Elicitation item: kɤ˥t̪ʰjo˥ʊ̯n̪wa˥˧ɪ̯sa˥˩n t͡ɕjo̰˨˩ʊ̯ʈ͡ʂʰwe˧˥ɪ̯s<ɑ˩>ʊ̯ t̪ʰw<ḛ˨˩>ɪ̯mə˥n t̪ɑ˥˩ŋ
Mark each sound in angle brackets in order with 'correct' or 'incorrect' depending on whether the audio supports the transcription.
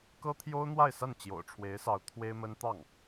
incorrect: ɑ˧˥, incorrect: e˥

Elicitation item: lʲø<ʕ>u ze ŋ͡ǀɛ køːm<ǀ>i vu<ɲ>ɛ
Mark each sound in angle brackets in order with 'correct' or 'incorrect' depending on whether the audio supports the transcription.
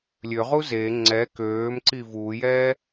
incorrect: ʁ, correct, incorrect: j

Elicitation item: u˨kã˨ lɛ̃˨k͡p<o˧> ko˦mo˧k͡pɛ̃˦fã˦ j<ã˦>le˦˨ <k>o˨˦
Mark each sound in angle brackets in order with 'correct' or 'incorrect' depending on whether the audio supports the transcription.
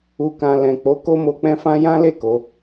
incorrect: o˨˦, correct, correct

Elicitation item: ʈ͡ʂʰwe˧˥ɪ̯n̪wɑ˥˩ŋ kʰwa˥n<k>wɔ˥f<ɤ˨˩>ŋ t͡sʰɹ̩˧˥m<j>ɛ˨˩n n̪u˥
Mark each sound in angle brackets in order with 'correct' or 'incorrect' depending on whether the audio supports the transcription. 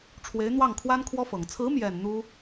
incorrect: kʰ, correct, correct

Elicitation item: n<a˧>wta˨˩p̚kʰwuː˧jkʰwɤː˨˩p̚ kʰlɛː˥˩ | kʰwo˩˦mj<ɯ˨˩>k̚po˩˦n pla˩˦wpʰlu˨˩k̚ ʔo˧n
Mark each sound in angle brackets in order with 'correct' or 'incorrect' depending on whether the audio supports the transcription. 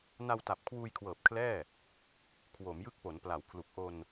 correct, incorrect: ɯ˦˥

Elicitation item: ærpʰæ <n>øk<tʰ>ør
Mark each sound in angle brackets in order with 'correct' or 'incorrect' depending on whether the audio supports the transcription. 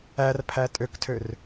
incorrect: tʼ, correct

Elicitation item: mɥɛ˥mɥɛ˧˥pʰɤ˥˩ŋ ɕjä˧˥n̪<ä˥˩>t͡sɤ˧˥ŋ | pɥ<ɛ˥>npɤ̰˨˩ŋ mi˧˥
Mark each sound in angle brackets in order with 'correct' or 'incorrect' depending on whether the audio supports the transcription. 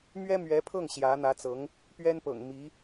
incorrect: ä˧˥, correct

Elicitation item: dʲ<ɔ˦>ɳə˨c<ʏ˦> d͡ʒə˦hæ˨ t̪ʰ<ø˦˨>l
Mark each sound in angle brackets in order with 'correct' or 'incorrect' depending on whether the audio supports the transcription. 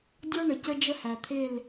correct, incorrect: ə˦, incorrect: e˦˨

